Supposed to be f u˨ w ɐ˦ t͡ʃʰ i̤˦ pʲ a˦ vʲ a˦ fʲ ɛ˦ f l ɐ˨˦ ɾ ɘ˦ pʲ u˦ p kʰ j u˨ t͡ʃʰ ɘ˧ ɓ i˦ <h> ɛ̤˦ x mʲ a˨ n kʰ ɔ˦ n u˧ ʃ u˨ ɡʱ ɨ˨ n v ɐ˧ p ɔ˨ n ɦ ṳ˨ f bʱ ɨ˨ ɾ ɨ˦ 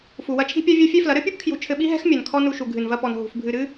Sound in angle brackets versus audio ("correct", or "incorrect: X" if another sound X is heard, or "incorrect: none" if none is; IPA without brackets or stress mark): incorrect: ɦ